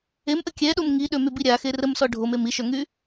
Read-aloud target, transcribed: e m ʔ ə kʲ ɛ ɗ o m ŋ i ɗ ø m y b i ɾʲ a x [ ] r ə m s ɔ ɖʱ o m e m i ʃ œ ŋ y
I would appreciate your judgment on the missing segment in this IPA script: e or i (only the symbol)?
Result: e